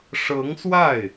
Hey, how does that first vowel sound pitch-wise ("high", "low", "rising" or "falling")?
rising